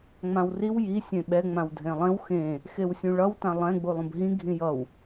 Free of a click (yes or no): yes